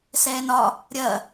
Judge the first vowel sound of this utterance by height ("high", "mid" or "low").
mid